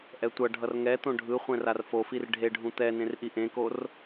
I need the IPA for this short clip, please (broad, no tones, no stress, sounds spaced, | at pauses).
ʔ ɛ tʷ ʌ ɖʱ ʌ r ŋ ɛ t̪ õ ɖʱ ɯ χʷ ɛ̃ r a r f o f i r ɖʱ e ɖʱ ũ t̪ ɛ n ẽ r ʔ i ʔ ẽ k o r